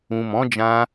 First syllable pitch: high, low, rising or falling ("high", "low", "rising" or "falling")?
low